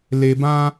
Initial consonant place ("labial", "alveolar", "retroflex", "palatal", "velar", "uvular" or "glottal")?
alveolar